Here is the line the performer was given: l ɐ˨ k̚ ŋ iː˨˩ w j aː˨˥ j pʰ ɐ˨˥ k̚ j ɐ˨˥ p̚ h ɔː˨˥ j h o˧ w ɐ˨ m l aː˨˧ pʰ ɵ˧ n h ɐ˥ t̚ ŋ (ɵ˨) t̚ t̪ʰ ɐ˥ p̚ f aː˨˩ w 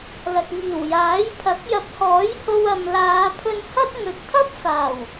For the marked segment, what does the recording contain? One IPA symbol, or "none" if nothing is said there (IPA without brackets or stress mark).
ɵ˨